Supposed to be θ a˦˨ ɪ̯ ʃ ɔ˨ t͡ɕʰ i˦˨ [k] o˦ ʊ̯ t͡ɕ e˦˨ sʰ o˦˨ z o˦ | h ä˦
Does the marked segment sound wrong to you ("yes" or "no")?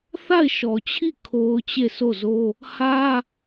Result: yes